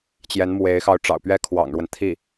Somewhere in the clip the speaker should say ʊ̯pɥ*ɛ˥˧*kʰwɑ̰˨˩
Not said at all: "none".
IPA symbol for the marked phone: ɛ˥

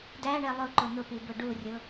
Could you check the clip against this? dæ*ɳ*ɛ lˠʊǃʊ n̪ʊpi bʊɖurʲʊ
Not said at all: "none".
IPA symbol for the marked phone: ɳ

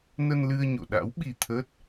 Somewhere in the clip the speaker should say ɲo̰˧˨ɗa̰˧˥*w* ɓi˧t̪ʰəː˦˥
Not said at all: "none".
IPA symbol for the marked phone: w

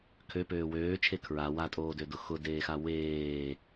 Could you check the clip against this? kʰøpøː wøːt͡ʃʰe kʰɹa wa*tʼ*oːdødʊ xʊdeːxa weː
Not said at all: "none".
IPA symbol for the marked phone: tʼ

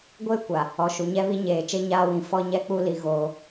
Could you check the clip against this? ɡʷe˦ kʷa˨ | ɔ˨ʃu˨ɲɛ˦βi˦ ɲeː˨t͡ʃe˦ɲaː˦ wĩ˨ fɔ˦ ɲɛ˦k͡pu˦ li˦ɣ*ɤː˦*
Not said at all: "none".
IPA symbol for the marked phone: oː˦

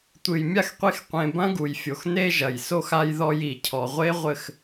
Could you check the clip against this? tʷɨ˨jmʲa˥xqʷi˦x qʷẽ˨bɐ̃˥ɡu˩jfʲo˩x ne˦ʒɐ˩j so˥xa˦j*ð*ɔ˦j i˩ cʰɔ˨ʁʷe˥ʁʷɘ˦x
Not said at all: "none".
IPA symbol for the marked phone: ð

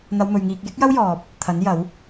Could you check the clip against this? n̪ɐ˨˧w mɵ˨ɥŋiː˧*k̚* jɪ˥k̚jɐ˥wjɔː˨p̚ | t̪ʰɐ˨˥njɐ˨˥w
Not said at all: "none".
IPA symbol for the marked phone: k̚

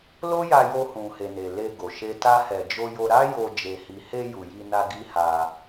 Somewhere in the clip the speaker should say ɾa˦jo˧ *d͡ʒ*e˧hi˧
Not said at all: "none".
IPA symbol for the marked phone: d͡ʒ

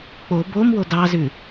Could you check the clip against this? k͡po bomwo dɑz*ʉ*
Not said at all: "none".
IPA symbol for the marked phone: ʉ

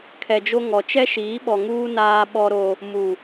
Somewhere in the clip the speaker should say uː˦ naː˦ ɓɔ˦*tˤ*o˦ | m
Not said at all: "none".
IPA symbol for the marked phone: ɾ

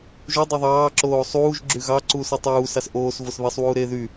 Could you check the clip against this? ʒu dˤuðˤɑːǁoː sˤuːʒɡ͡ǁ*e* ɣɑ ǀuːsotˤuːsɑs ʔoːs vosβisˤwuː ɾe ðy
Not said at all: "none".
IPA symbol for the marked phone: y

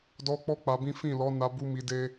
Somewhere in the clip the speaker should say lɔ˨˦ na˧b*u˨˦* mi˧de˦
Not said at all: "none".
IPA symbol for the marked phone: u˧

